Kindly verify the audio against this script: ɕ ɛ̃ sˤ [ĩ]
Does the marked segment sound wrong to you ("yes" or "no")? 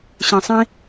no